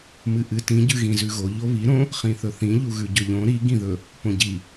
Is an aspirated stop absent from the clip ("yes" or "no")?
yes